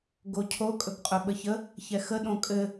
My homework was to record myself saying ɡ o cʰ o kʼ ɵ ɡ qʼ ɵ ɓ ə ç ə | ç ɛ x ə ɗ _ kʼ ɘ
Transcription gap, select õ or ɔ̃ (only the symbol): õ